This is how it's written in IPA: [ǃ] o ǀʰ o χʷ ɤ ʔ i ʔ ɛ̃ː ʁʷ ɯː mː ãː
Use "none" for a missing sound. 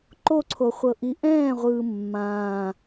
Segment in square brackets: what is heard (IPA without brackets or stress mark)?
ǃ